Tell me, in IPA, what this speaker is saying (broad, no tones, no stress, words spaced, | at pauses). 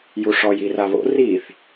juʂɔj iraβo̰ riθ